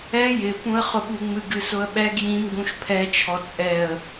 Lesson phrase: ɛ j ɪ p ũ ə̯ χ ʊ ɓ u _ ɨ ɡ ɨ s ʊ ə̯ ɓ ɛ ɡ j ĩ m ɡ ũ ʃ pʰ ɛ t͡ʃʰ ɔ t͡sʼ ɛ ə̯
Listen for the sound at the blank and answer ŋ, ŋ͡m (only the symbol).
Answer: ŋ͡m